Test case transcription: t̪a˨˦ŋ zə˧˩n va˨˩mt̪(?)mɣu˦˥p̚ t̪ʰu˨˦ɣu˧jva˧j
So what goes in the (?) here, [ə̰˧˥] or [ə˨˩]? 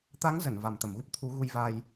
ə˨˩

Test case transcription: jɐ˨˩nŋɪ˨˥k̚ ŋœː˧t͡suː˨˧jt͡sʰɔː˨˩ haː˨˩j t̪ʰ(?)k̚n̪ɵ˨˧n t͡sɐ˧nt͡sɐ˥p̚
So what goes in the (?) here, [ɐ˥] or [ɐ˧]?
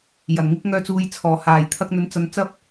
ɐ˧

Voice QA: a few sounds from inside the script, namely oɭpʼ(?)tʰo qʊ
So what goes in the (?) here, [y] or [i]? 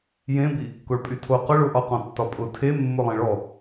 y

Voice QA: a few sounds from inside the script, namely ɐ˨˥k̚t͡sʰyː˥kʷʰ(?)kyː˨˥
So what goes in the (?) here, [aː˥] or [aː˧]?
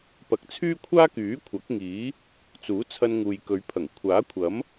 aː˥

